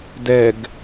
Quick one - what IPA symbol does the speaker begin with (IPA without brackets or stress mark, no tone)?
d